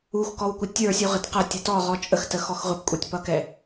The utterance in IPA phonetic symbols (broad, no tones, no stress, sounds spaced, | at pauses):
u x k ɔ w kʷ ɪ tʲ ə˞ sʲ u ʁ ɪ t q ʌ tʲ ʊ t ɔ ʁ ɔ t͡ʃʼ ə x t ə x ɔ x ʁʷ ɪ p kʷʼ ə˞ tʲ p ʌ k ɛ